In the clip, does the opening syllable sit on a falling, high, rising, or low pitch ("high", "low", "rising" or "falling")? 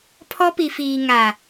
high